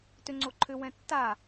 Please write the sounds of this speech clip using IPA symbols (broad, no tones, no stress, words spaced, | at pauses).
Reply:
tʏ ŋ͡ǀoǃʰʏ wɛ̃tːa